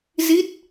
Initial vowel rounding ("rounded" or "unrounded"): unrounded